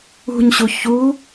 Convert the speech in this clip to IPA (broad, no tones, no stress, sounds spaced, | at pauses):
ṳ ɲ ɕ u ç u